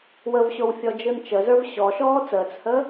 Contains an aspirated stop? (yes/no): no